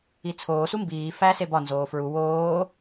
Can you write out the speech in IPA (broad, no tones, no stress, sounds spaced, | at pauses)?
i t͡sʰ oː s u m b iː f æ s e b ɒ n z oː f ɹ u w oː